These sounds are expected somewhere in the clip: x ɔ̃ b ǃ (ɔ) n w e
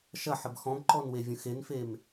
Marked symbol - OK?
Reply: yes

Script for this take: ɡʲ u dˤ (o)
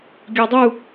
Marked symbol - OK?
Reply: no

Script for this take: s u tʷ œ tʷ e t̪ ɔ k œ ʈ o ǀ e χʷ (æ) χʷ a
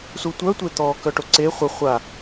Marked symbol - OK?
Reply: no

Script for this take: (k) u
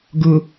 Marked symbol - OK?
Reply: no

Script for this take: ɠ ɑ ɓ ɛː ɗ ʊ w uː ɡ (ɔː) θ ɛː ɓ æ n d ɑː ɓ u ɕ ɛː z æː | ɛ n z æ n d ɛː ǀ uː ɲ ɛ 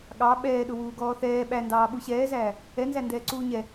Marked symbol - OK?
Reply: yes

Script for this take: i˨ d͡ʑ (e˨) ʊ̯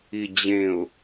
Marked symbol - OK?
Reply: no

